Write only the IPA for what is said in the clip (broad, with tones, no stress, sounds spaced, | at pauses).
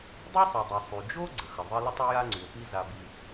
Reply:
dˤ a˥ sˤ u˩ dˤ u˩ sˤ y˩ d͡ʒ o˥ ɡ͡ǀ ə˩ x ə˩ ðˤ i˥ l ə˥ tˤ o˥ j a˥ ŋ͡ǀ y˩ o̯ p i˥ z a˧ b i˧